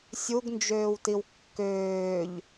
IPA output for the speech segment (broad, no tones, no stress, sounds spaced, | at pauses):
sʲ u ɡ n d͡ʒ øː w t i w kː øː ʎ